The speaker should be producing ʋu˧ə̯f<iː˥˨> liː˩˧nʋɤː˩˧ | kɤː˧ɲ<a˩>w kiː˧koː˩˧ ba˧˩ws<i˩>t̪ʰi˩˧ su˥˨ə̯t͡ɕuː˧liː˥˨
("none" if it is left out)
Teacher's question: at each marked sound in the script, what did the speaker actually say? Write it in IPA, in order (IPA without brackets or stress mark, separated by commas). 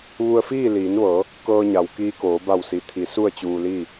iː˥˨, a˩, i˩